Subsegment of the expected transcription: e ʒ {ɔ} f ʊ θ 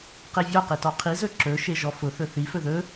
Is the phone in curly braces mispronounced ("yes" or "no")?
no